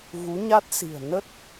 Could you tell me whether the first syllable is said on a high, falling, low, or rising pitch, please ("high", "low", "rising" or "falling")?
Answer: rising